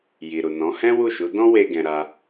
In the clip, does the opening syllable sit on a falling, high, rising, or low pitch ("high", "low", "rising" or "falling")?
low